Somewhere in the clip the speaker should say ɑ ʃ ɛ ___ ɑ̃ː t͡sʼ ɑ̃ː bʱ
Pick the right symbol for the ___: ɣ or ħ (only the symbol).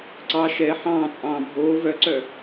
ħ